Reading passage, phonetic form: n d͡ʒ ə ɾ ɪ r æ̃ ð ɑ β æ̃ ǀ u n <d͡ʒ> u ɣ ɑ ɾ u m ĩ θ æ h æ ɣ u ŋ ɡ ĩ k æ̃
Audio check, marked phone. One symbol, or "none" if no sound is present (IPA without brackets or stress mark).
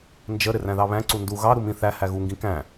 d